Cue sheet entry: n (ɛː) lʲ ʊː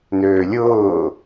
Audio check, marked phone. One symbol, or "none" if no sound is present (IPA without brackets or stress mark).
øː